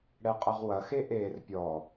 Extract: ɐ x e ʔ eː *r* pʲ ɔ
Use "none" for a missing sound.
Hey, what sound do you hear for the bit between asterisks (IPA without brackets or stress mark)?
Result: r